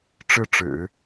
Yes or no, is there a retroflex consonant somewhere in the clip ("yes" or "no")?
yes